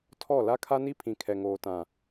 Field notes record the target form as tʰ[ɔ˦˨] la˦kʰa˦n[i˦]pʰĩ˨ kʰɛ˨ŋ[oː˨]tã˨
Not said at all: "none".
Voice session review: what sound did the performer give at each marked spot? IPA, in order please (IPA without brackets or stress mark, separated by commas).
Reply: ɔ˦˨, i˦, oː˨